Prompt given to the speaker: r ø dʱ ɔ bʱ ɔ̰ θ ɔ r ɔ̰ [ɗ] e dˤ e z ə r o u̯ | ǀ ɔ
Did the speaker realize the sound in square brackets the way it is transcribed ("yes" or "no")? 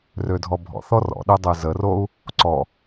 yes